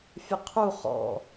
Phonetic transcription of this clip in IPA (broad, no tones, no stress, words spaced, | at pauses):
fʲəqʰu χɔ̰